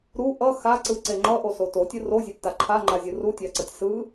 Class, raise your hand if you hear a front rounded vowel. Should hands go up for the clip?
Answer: no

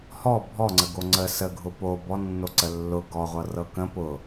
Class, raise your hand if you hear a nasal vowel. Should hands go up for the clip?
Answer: yes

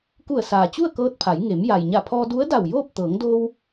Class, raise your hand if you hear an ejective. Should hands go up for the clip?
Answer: no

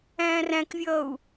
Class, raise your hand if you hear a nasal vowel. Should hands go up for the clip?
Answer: yes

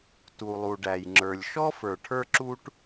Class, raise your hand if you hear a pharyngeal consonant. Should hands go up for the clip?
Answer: no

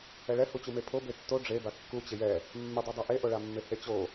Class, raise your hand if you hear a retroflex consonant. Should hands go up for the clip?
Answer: yes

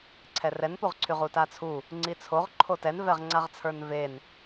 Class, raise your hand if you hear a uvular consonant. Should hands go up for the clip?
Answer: yes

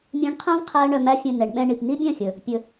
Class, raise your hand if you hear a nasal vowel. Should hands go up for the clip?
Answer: yes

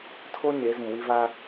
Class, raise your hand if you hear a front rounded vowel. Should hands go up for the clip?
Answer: no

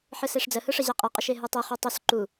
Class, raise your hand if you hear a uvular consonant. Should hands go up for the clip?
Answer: yes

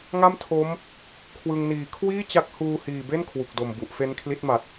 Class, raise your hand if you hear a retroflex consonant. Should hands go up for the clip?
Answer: no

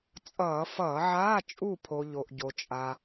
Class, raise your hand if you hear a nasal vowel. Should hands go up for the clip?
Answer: no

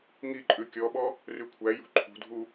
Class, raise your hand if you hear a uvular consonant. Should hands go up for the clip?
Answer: no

